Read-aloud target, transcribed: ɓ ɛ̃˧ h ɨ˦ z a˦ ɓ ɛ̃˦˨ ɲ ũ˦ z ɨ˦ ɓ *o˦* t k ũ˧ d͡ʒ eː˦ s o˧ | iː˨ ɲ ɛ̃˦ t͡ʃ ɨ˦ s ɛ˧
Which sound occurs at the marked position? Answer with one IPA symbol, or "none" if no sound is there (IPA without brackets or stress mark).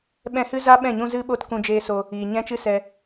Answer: o˦